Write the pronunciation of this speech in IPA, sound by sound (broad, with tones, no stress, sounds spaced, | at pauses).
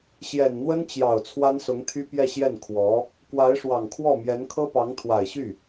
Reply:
ɕ j ɛ˨˩ n n̪ w ə˥ n t͡ɕ j ɑ˨˩ ʊ̯ t͡sʰ w a˥ n s ʊ˧˥ ŋ t̪ʰ y˥ p j ɛ˥˧ ɕ j ɛ˥˩ n kʰ w ɔ˧˥ | k w a˧˥ ɪ̯ ʂ w ɑ˨˩ ŋ kʰ w ɔ˥˩ m j ɛ˧˥ n kʰ ɤ˥ p ɑ˧˥ ŋ t̪ʰ w a˨˩ ɪ̯ ɕ y˥˩